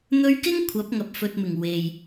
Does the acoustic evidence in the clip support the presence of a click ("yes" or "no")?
no